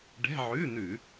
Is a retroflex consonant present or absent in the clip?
present